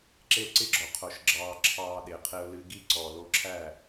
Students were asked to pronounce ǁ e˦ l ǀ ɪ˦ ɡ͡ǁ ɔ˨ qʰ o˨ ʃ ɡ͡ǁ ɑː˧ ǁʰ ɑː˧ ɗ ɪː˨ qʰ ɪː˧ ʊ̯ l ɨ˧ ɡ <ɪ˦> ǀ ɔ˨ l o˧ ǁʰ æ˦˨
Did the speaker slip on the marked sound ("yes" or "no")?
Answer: yes